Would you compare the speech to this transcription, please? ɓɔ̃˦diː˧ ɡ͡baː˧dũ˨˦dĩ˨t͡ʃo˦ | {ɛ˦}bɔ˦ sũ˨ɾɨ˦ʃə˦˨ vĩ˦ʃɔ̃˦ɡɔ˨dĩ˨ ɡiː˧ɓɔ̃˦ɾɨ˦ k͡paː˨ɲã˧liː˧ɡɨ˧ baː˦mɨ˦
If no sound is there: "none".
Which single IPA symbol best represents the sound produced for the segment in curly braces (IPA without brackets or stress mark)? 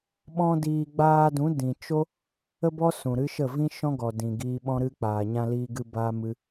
ə˦